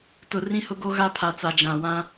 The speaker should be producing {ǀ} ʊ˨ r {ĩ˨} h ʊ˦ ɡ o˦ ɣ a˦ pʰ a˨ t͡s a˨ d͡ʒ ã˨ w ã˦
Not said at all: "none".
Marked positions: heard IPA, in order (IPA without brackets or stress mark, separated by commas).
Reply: t, ĩ˦